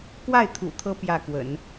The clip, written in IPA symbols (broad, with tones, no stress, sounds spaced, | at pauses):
k w a˥˩ ɪ̯ t̪ʰ ṵ˨˩ t̪ʰ ɤ˧˥ p j ä˥˩ k w ə̰˨˩˦ n